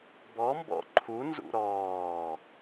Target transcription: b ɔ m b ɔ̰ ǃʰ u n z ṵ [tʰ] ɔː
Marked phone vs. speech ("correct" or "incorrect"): incorrect